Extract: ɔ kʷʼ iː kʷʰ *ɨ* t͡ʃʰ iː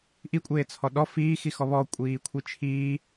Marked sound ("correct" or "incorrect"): incorrect